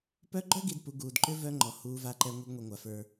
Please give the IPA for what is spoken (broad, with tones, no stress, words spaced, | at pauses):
pœ˦ ɡ͡ǃœ˦ɡi˨dpu˨ ɡuː˨dǃʏ˦ vœ˦ŋ͡ǃɔ˨ huː˨va˨ǃɛ˨ ŋʷɛ˦ɡŋʷi˨ŋʷa˨fə˞˦